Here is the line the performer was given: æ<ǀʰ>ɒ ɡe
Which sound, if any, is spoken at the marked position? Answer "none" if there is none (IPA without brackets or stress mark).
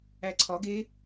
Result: ǀʰ